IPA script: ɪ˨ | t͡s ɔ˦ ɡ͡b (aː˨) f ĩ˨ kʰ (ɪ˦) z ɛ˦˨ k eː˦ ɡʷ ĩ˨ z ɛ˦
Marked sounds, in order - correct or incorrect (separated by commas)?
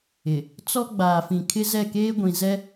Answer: correct, correct